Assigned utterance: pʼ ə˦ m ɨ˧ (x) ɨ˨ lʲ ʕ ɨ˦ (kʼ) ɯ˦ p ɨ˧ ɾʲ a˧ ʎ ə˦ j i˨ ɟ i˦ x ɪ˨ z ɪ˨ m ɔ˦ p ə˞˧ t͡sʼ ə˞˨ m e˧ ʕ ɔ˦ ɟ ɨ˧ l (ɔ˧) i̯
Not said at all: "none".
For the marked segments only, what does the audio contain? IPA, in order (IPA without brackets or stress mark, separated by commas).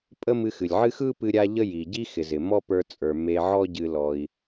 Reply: x, x, ɔ˧